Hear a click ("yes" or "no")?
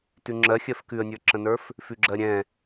yes